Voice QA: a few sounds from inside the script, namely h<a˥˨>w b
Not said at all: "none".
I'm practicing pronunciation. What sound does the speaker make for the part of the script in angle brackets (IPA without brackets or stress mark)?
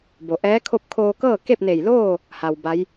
a˧